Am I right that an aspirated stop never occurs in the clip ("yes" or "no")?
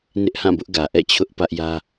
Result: no